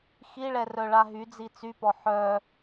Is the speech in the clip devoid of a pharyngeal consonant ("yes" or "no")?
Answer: no